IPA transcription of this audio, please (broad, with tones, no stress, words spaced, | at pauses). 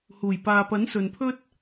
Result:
huː˨˩jpaː˨pɐ˨˥n sɵ˨npʰɵ˥t̚